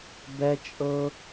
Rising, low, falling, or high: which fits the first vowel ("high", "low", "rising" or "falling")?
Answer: high